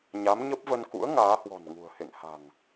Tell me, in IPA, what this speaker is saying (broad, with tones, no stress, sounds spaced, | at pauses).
ɲ a˨˦ m ɲ ə˦˥ p̚ v ə˧ n k ṵ˧˥ ə̯ ŋ aː˨˦ h w ɔ̤˨˩ n ŋ ṳ˨˩ ə̯ h ḛ˧˨ ŋ h a̤˨˩ ŋ